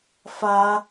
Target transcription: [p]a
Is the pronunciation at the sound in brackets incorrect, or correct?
incorrect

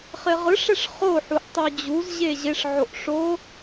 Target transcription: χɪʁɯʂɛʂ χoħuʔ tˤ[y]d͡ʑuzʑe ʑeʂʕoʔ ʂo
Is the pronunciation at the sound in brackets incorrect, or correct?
correct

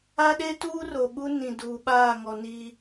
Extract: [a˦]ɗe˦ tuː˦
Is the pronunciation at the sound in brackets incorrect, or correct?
correct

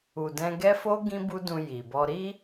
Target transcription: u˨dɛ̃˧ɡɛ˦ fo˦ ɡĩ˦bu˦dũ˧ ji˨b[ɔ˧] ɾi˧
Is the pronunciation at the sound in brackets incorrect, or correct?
correct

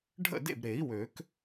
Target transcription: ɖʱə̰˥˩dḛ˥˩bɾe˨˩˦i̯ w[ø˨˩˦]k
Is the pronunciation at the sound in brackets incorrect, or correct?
correct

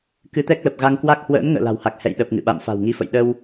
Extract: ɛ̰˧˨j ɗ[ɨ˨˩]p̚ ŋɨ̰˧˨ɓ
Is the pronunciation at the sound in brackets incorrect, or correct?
incorrect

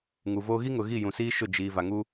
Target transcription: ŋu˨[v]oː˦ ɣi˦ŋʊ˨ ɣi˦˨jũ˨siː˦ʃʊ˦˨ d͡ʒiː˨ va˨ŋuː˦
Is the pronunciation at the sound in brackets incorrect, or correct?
correct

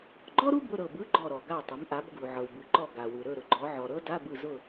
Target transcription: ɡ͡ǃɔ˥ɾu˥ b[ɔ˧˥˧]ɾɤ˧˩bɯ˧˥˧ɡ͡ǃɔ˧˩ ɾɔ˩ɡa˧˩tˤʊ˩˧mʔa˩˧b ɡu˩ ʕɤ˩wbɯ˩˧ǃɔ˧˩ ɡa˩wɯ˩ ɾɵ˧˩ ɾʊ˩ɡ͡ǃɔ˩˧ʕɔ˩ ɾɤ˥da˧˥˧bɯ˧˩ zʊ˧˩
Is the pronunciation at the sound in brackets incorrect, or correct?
incorrect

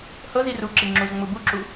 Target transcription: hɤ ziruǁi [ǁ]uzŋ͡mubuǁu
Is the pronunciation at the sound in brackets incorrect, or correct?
incorrect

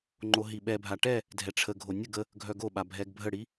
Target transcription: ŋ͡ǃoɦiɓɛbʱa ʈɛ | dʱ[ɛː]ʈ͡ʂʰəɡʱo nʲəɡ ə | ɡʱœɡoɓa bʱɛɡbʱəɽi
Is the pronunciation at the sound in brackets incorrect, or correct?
incorrect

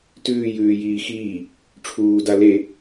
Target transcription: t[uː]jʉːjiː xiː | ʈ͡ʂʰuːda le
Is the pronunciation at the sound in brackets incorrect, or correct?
incorrect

